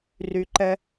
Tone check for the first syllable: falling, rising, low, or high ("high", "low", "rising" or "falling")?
low